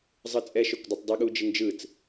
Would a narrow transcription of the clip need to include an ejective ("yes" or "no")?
yes